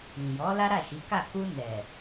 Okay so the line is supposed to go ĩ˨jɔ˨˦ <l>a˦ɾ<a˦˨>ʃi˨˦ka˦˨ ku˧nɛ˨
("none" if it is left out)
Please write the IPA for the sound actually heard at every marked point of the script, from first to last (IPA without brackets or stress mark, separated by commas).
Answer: l, a˦˨